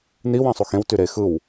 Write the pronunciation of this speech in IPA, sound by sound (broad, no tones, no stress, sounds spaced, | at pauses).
n i w ɑ̃ sˤ u x ẽ w t y ɾ e x ɯ w